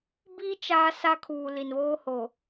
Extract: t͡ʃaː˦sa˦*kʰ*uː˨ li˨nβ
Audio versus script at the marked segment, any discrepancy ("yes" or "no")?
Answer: no